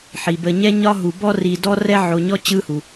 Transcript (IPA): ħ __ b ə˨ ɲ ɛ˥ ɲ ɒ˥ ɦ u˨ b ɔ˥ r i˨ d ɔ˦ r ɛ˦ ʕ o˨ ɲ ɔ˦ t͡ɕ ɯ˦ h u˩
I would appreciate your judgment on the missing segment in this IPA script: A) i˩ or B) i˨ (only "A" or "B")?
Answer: A